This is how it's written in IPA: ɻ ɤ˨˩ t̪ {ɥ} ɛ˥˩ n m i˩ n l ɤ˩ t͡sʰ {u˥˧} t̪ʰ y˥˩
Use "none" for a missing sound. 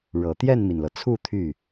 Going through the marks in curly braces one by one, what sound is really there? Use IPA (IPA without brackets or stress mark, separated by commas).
j, u˥˧